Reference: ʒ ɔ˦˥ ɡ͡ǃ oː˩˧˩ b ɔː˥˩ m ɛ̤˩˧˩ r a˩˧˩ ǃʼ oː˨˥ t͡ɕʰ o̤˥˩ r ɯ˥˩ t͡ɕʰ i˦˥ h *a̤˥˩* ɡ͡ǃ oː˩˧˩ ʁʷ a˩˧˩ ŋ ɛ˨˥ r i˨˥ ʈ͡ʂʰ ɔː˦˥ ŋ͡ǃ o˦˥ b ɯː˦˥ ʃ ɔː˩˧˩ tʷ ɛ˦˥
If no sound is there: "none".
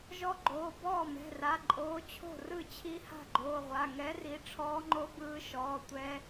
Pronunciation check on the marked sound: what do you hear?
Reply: a̤˥˩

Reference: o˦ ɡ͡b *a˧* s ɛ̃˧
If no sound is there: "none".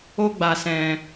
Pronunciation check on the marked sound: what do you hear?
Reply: a˧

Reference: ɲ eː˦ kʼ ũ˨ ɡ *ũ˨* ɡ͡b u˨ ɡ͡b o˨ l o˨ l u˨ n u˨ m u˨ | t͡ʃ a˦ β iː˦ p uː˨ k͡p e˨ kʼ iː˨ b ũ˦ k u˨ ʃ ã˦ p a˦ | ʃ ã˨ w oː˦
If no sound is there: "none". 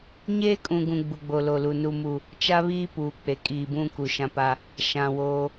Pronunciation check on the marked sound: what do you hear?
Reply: ũ˨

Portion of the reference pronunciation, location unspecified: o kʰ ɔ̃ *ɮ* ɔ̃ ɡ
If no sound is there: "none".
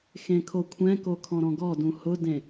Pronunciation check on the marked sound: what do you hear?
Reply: ɾ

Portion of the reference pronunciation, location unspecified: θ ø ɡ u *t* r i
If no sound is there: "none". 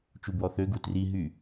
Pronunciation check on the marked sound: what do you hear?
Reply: t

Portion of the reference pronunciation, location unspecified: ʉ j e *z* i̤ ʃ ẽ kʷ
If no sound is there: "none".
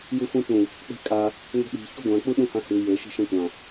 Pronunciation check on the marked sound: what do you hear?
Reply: ʃ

